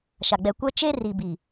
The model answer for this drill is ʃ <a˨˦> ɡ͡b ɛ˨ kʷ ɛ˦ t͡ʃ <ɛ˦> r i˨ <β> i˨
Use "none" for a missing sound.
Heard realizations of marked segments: a˨, e˦, b

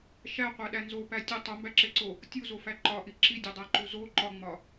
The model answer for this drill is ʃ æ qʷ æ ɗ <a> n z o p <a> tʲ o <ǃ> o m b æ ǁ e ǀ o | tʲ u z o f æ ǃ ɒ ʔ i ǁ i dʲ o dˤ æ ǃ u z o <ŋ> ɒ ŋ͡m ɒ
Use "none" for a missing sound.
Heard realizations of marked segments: æ, æ, tˤ, ǃ

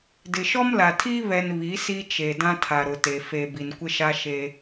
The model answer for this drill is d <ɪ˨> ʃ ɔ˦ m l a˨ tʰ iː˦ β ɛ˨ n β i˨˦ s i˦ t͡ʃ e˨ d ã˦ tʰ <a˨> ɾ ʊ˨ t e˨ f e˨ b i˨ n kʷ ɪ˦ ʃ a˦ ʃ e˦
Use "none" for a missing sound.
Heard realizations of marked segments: ɪ˨, a˨

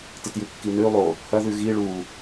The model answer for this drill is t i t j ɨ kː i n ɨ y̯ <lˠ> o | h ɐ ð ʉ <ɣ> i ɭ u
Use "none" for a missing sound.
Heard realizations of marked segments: lˠ, ɣ

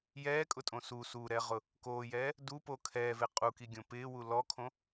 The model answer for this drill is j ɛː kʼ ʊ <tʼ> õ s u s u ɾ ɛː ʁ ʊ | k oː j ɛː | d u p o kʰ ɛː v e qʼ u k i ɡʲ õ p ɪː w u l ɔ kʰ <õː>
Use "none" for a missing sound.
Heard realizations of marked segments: tʼ, õ

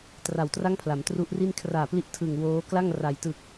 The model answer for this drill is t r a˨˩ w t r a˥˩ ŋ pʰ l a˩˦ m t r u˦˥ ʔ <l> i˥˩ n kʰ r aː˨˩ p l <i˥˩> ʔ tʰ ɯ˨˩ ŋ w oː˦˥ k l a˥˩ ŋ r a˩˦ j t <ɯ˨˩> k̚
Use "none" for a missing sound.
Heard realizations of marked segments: r, i˦˥, ɯ˨˩

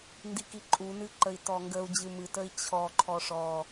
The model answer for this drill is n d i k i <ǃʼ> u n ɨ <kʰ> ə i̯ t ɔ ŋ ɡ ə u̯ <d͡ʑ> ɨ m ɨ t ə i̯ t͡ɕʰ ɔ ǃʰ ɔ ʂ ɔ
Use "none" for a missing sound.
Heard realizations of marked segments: ǃʼ, ǃ, d͡ʑ

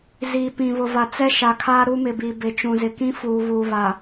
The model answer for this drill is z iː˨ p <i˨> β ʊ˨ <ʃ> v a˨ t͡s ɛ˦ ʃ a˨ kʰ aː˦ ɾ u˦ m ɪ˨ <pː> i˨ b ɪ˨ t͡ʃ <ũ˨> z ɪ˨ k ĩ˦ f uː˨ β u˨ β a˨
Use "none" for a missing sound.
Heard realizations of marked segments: ĩ˨, none, b, ũ˨

